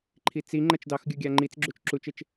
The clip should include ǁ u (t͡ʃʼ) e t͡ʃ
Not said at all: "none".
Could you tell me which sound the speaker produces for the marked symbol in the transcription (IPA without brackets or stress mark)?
t͡ʃ